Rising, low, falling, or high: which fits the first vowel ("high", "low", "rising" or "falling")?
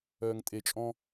low